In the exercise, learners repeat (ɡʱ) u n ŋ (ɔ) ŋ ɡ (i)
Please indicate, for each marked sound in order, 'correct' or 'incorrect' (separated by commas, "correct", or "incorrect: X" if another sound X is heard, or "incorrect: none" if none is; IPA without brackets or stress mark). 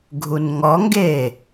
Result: correct, correct, incorrect: e